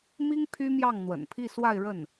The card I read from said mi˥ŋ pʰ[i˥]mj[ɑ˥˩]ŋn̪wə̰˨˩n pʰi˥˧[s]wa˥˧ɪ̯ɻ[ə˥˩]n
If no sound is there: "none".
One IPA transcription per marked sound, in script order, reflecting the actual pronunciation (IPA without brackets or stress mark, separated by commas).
y˥, ɑ˥˩, s, ə˥˩